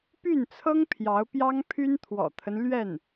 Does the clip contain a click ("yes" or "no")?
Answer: no